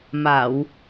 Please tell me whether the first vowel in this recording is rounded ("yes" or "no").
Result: no